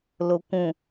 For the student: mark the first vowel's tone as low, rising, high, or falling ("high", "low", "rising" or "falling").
low